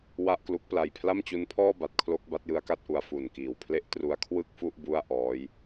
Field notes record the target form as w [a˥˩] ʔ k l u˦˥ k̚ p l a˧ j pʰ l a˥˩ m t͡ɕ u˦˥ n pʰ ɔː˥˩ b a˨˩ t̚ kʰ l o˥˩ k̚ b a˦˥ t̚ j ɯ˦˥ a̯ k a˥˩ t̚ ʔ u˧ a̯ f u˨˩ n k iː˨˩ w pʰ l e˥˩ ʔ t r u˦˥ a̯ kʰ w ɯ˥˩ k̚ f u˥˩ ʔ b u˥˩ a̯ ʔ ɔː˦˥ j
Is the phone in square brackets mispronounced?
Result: no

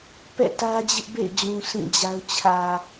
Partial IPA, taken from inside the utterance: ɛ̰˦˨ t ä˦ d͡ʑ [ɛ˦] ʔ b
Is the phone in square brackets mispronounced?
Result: yes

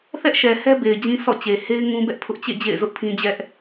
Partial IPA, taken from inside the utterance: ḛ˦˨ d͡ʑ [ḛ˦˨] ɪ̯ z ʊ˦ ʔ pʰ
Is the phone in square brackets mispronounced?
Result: no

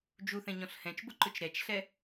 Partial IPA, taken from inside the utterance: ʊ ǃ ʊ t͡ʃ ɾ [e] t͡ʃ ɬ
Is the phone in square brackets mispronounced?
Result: yes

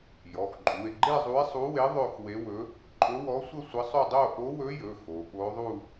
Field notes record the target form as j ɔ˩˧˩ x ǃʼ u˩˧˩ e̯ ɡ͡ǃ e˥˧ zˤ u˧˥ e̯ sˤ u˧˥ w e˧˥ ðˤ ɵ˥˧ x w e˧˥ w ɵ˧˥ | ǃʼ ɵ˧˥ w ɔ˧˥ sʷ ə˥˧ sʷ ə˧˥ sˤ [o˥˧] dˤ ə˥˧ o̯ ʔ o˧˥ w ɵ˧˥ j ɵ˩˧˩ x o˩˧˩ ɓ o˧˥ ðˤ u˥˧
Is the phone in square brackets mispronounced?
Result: yes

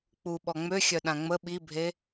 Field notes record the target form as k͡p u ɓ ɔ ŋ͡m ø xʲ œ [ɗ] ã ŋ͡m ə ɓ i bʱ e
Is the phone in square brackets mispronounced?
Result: no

